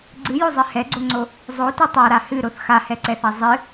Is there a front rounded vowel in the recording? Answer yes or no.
no